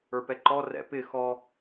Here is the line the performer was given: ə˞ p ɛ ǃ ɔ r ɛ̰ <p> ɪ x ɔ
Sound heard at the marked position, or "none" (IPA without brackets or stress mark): p